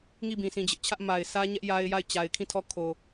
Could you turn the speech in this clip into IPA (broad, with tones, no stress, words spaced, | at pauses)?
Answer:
ŋi˦˨bĩ˨ sĩ˨ d͡ʑɪ˦ʔt͡ɕʰä˦ʔ ma˨ɪ̯sʰä˦ɲɛ˦ʔ ja˦ɪ̯ ja˦˨ɪ̯t͡ɕa˨ɪ̯kʰĩ˦˨tʰɔ˦˨ kʰo˨